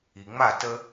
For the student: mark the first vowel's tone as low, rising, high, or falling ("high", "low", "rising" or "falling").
low